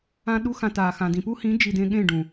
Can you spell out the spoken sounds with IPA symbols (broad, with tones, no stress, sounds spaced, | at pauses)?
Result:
ã˦ ɗ u˦ x ã˧ t aː˨ x ã˨ d ĩ˨ p u˦ h ĩ˨˦ d͡ʒ i˨ d ẽ˧ ɠ ẽ˦˨ ɖ ũ˨